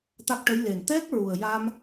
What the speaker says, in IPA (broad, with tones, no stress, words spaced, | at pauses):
t̪a˦˥k̚ʈə˧˥j le˨˩n t̪ɛ˦˥k̚ ɹu˨˩ə̯ja˧m